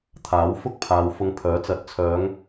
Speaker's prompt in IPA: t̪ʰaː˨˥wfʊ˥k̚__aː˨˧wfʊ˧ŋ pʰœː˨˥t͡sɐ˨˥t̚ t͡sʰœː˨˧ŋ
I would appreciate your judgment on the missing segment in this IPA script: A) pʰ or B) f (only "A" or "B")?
A